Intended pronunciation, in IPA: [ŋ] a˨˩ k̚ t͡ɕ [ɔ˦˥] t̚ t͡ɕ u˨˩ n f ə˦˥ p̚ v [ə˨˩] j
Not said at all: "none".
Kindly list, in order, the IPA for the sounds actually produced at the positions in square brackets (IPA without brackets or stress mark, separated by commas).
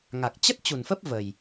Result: ŋ, ə˦˥, ə˨˩